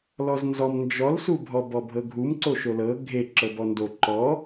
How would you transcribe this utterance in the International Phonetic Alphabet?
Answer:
lɔznzɔm nd͡ʒɔlsubʱɔ bɔbʱɤɡʱum ǀoʃolɤ ɡʱe ǁɤbɔndo ǃɔ

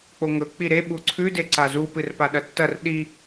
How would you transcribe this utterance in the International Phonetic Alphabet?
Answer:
k͡poŋɵ k͡piɾe ɓuǀʰʉ deǀazu pɨrpaɗɐtːɐr ɗi

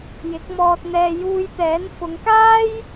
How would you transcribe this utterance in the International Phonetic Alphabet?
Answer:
jɪ˨˥k̚mɔː˧t̚n̪ɛː˧ juː˧jt̪ɛː˨˥n fʊ˨˧ŋkaː˥j

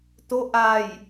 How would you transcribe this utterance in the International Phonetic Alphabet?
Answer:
to ʔaj

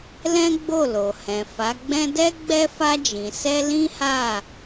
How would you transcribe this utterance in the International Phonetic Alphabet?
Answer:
lɛ̃˦ɡ͡bo˦˨lo˨hɛ̃˨ fa˨˦ɡ͡bɛ̃˦ dɛ˦ɡ͡bɛ˦ fa˧d͡ʒĩ˨sɛ˧ lĩ˦ha˦˨

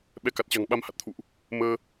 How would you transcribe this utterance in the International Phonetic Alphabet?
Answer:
ɓɛ˨˦ka˨˩t̚t͡ɕa̤˨˩ŋɓa˧m ha˨˩t̚t̪ʰṵ˧˨ʔ | məː˧

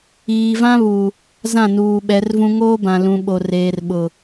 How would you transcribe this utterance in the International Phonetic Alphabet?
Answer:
iː˨vã˦βu˨ | zã˦˨nuː˨ɓɛ˨˦rvũ˦ ŋoː˦bã˨ lũ˨ ɓo˨reː˨rɓʊ˨

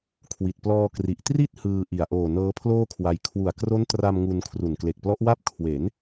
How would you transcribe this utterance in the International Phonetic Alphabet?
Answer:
kʰwi˨˩t̚ plɔː˧kri˨˩ʔ tri˥˩t̚hɯː˧ʔi˨˩a̯ ʔoː˨˩ nɤː˦˥pʰloː˥˩kʰwa˧j kʰwu˨˩a̯kro˦˥ntra˧m ŋu˧n kʰru˨˩nkle˨˩k̚plɔ˦˥ʔwa˥˩p̚ kʰwe˩˦n

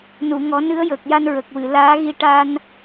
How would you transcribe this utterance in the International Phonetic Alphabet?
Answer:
nu˨˩˨ŋɔ˨˩˦nɨ˧˥ə̯jəː˨˩k̚ ja˧nɹə˨˩k̚wɨ˨˩˨ laː˧˥ɣi˧ ʈa˧n

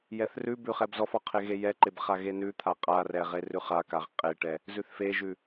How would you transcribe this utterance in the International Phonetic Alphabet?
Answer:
jɛθrʉbʉ χɛbzɔfɔ qʰeɣejɛǃeb χaɣenʉt̪ʰa qʼarɛ ʁerʉχakaʁ qʼeʈɛ | zʉθfeʒʉ

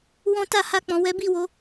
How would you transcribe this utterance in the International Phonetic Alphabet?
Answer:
wɔ̃˦ ta˦˨ha˧k͡pɔ̃˨ wɛ˨˦bi˦˨wo˨˦

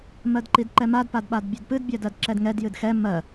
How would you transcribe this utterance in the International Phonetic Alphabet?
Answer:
mɜdǃidǃɛmad padɓadbʲɛdpɨd bʲædɜdǁɛdŋɛd jɨdxɛ mɜ

